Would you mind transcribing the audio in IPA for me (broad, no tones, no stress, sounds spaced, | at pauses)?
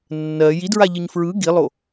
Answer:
nː ɜ j i d ɹ a ʎ ɯ ɲ f ɹ ɯ ɡ i lˠ o